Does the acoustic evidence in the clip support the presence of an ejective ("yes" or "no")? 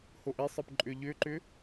yes